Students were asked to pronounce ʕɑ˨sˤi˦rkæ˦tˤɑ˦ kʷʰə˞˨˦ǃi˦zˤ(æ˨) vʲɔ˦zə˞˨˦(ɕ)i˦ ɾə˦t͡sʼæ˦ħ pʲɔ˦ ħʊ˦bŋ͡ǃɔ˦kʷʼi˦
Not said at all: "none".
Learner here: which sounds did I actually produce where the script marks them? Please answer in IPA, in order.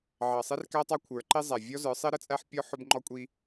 æ˨, sˤ

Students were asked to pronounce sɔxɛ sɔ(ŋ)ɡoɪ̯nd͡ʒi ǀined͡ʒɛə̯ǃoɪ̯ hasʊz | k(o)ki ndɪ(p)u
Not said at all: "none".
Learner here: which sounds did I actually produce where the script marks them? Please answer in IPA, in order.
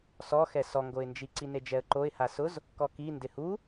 ŋ, ɔ, h

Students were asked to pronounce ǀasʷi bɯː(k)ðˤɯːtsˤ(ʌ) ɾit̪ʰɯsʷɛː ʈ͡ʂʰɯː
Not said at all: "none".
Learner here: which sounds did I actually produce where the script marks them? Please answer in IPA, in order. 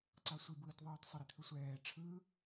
t, ʌ

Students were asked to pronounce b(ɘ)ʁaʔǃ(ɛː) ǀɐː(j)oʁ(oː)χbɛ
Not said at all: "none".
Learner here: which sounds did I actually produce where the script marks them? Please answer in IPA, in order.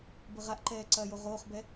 ɘ, ɛː, j, oː

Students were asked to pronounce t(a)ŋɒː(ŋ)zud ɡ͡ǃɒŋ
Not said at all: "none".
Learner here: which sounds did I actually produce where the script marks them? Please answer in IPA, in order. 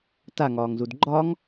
a, ŋ

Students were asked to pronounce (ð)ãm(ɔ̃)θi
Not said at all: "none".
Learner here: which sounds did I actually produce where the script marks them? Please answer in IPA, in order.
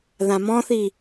ð, ɔ̃

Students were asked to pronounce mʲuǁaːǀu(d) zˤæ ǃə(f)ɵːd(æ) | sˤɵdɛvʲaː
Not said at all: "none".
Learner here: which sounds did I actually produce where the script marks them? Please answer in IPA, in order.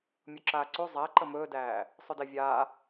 none, m, æː

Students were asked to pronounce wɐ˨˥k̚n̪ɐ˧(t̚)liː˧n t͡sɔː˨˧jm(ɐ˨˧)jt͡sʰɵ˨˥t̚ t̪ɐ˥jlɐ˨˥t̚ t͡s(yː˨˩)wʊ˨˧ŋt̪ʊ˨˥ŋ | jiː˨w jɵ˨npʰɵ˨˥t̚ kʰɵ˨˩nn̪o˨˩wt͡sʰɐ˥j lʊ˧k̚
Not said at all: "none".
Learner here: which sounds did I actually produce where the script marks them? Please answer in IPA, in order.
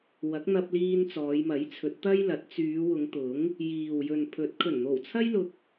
p̚, ɐ˨˥, yː˨˧

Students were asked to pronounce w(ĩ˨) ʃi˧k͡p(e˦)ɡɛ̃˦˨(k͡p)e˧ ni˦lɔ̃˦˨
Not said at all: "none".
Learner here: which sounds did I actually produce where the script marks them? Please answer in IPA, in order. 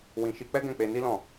ĩ˧, ɛ˦, k͡p

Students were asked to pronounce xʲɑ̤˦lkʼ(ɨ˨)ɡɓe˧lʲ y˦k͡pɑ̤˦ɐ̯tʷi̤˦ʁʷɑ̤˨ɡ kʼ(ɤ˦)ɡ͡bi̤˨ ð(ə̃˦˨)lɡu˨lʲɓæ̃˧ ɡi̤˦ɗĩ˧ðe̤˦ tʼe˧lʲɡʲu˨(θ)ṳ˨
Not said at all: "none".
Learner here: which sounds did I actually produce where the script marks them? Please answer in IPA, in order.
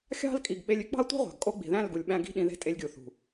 i˨, o˦, æ̃˦˨, θ

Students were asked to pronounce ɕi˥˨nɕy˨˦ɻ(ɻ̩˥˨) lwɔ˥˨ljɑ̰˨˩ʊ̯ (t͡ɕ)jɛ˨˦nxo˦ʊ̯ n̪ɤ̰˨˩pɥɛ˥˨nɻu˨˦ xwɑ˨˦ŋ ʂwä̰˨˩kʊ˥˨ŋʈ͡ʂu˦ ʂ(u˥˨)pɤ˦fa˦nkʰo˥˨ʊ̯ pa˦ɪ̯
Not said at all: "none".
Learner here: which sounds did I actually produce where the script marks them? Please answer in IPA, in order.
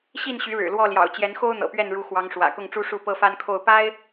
ɻ̩˨˩, t͡ɕ, u˥˨

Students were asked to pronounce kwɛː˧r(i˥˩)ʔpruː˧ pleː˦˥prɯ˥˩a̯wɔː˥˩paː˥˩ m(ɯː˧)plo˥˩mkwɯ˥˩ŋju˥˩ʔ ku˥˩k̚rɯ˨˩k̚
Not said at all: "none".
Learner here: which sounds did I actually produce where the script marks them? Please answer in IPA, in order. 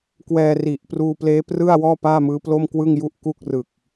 i˨˩, ɯː˦˥

